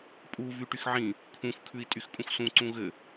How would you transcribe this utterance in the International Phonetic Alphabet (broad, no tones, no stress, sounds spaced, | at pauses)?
pʼ u v y ʈ y x ʕ ĩ | kʰ ũ x kʰ ʉ i̯ tʼ y x kʼ ũ x s ũ ǀ ũ ɣ ɘ